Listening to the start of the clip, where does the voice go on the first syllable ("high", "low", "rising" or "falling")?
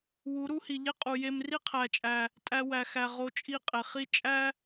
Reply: rising